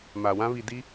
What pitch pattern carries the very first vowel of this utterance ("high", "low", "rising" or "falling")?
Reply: low